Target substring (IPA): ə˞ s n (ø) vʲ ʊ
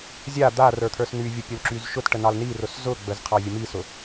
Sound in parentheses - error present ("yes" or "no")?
yes